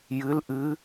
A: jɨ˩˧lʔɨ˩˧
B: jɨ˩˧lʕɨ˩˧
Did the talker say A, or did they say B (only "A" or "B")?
A